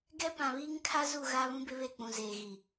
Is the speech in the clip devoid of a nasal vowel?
no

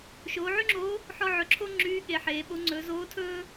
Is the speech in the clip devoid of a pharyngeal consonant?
no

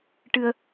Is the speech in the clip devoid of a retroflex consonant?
no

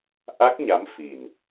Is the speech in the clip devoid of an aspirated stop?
yes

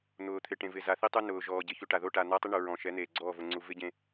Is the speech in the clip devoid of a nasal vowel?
no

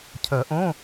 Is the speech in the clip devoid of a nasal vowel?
no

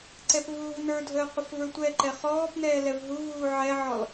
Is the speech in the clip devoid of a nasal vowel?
yes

